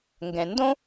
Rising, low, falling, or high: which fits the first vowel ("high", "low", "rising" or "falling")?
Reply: low